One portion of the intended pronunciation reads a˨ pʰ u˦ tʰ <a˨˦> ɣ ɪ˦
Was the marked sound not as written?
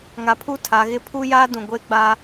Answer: no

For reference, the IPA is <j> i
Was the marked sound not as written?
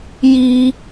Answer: no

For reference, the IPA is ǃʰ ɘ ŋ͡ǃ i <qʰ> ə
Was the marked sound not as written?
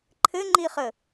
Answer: yes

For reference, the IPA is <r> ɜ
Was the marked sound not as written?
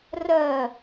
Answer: no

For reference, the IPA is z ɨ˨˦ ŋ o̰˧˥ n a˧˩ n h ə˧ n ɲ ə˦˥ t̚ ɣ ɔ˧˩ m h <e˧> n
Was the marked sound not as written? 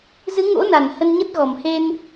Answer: no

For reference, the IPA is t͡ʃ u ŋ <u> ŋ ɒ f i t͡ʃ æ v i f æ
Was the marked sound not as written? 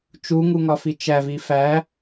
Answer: no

